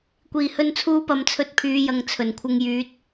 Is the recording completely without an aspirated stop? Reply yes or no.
no